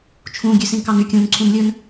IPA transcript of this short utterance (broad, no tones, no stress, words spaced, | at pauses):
t͡ʃʰũ ɡʲʉsĩnkɑny kʲũn ǀʰũnlʲɵn